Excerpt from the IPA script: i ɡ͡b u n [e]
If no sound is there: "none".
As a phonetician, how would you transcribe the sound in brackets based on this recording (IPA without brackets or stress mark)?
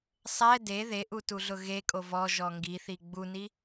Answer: i